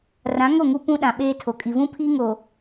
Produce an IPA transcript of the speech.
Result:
r ã˨˦ ŋ o˦˨ ŋ u˦ p ũ˦ ɗ ã˨ ɓ eː˦ tʰ o˨ kʼ i˨ v ũ˦ pʰ iː˦ ŋ o˨

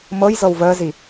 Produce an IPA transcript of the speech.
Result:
m ɤ j z ɤ w v əː z i

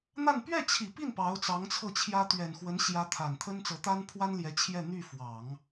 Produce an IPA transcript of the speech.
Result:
n̪ a˥˧ n p ɥ ɛ˥˩ t͡ɕʰ i˨˩ p i˥˩ n p ɑ˧˥ ʊ̯ t͡s ɑ˧˥ ŋ t͡sʰ ɤ˥˩ t͡ɕʰ j ä˥ t̪ ɥ ɛ˨˩ n x w ə˧˥ n ɕ j ä˧˥ t̪ʰ a˨˩ n t̪ʰ ə˥ n t͡s ɤ˧˥ t̪ a˥ n pʰ w a˥ n l j ɛ˧˥ t͡ɕʰ j ɛ˥˧ n̪ y˥˩ f w ɑ˨˩˦ ŋ

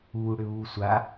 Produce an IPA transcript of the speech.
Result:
u ɽ ʏ β u sʷ a

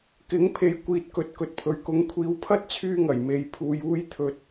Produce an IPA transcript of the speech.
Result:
k ɪ˨˥ ŋ pʰ e˨ j kʷ iː˨ t̚ k ɵ˨ t̚ k ɵ˨ t̚ pʰ ɵ˨ ɥ k ʊ˨˥ ŋ kʷʰ iː˨˥ w pʰ ɐ˥ t̚ t͡sʰ yː˧ ŋ ɐ˨˩ j m e˨ j pʰ uː˨ j uː˧ j t̪ʰ ɵ˨ t̚

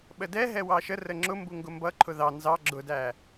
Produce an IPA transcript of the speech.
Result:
ɓ ə d ɛ ɦ ɛ w ɑ ʃ ə r ə ŋ͡ǁ ʊ m b u ŋ ɡ ʊ m b ʌ ǃʰ ʊ ð ɑ n z ɑ ɡ͡ǁ ʊ d æ

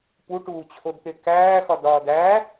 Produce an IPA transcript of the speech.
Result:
p u ʈ uː t͡ɕʰ o d t̪ e k æː x ɒ d ɒː d æ

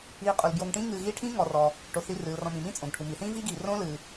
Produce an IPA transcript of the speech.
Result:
iː˨ qʼ u˩ l b j o˨ ŋ ʈ ĩː˦ ŋ ɨː˨ ɣ iː˦ ʈʰ ĩː˥ ŋ ɔ˩ r ɔ˩ | ʈ o˩ θ i˨ r ɨː˩ l r ɔ̃˨ m ĩ˩ m ĩ˥ t͡sʼ õ˩ ɡ ʈʰ u˩ m i˩ θ ĩː˦ v iː˦ ɡ iː˩ r õː˦ l ɨː˩

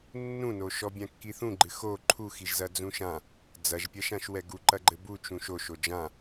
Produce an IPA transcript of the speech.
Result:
nː ũ n o ʃ ɔ bʲ ã kː i θ ũ ɡ͡ǃ ɨ x o ǃʰ u x i ʒ z ɐ d͡z ũ ʃ ã | d͡z ɐ ʒ pʲ ɐ ʃ ã ʃ w ɛ ɡ u ǃ ɐ ɡ͡ǃ ɘ b u t͡ʃ ũ ʃ o ʃ o d͡ʒ ã

